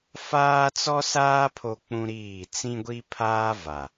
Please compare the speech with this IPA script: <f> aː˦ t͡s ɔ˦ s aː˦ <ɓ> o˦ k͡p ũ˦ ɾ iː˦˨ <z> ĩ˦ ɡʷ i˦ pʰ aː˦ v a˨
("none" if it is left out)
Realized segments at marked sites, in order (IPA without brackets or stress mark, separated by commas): f, pʰ, t͡s